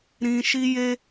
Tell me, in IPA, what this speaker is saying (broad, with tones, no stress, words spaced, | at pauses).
ɾĩ˧ʃi˦ je˦